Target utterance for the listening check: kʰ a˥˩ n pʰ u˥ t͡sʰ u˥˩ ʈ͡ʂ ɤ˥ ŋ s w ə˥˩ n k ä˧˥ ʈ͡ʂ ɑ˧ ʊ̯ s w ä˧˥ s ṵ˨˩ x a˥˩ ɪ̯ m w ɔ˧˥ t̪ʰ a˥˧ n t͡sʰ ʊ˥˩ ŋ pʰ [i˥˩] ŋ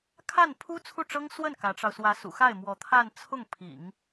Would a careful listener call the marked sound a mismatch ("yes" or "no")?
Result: yes